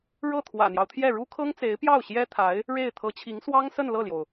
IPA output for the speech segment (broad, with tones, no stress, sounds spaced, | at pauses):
ɻ ɤ˥˩ t̪ʰ w ä̰˨˩ n̪ j ɑ˦ ʊ̯ t̪ʰ j ɛ˥˩ ɻ u˥ kʰ ɤ˥ ŋ t͡s e˧˥ ɪ̯ p j ɑ˥˩ ʊ̯ ɕ j ɛ˥ t̪ʰ a˧˥ ɪ̯ | ɻ e˥˩ ɪ̯ t̪ʰ ɤ˧˥ t͡ɕʰ i˧˥ ŋ s w ɑ˥ ŋ s ə˥˧ n l ɤ˥˩ l j o˩ ʊ̯